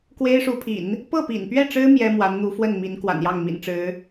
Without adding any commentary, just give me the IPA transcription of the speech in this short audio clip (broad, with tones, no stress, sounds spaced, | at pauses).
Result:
k w e˥ ɪ̯ ʂ u˧˥ pʰ ḭ˨˩˦ n | p ɤ˥˩ p ḭ˨˩ n p ɥ ɛ˥˩ ʈ͡ʂ ɻ̩˥ m j ɛ˥ m w a˧˥ n n̪ u˧˥ f w ə˥˩ n m i˧˥ n k w a̰˨˩ n j ɑ˥˩ ŋ m ḭ˨˩ n ʈ͡ʂ ɻ̩˧˥